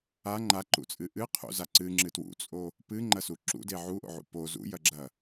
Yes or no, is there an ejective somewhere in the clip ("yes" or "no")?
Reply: yes